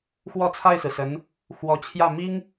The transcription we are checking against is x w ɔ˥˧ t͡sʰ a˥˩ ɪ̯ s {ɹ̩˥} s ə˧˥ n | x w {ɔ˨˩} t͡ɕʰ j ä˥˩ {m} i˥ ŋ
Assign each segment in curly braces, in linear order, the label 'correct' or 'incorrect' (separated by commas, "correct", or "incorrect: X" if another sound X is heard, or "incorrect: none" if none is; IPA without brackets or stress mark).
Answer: incorrect: ɹ̩˩, incorrect: ɔ˧˥, correct